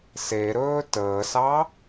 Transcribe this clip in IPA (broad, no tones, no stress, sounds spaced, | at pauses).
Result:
s e ɾ ɵː t əː s ɑ